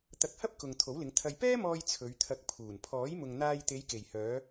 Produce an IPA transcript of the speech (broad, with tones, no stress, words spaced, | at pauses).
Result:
t̪ɐ˧k̚hɐ˥p̚kʊ˨ŋ t̪ʰo˨˥wlɪ˨˧ŋ t̪ʰɐ˧j pɛː˥mɔː˧j t͡sʰɵ˨˧ɥ t̪ʰɐ˨˥k̚ pʰuː˨˩npʰɔː˨˥jmʊ˨ŋ n̪aː˧jt̪e˨˧jke˨˩jhœː˨˧